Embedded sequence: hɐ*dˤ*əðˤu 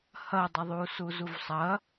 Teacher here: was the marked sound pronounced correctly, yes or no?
yes